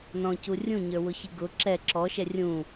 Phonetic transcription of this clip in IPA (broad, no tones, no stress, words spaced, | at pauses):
nɔ̃cu rʲũɲə˞wʊçi ɡʊ ǁɛ ǁɔʃɛ rʲũ